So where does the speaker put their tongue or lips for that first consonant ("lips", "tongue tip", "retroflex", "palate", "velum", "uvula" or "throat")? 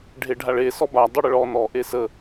retroflex